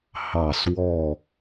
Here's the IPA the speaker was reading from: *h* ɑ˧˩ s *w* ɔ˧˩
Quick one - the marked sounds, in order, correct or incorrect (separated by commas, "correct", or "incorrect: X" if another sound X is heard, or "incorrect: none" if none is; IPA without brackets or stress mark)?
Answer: correct, correct